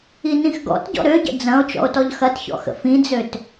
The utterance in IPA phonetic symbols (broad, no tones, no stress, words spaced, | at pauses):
inĩxɡɔ̰tɟɔ̰ ɾøɟə̰ d͡zɐ̃o̯ t͡ʃɔ̰o̯tɔʎxɐtçɔ̰ xə̰fĩd͡zøt